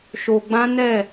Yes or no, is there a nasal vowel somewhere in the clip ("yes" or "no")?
yes